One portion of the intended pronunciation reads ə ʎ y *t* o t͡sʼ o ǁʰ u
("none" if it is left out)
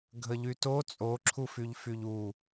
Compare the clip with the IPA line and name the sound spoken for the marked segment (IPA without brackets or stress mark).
t